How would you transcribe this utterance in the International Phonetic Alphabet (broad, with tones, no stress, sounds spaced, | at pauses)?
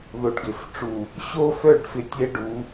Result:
ð o˨ ɖ ɡ ɪ˨ f ʈ͡ʂ u˨ | ɕ o˦ f œ˦˨ ɖ f ɪ˨ tʲ ɛ˦ ɖ u˨˦